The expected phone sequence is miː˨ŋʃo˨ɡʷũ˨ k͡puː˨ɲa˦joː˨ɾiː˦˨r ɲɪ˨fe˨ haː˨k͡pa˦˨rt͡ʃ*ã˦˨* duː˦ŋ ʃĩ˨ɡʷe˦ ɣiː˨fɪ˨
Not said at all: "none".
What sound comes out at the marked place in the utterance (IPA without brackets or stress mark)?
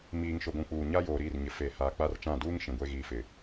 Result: ã˦˨